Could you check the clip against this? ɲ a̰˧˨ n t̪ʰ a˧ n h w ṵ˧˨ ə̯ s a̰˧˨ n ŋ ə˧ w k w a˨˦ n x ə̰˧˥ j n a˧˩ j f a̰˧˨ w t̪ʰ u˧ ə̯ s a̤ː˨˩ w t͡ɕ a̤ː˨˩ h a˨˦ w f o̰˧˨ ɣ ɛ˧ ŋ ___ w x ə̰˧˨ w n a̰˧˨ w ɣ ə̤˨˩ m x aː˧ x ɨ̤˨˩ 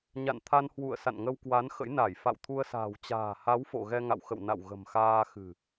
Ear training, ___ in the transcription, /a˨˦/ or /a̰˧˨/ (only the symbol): a̰˧˨